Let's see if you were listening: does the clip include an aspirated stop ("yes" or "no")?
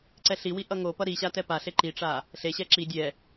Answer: no